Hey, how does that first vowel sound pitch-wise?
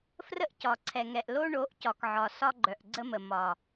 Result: high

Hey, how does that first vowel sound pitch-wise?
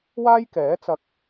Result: high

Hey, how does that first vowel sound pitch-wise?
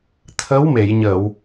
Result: rising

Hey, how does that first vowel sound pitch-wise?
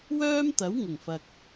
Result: high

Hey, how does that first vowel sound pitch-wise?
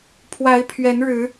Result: rising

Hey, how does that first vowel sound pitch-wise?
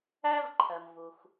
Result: high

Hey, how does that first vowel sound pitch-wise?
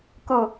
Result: low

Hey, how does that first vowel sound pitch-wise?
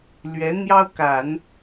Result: rising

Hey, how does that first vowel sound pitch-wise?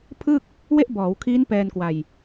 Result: falling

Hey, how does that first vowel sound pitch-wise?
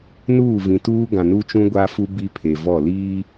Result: falling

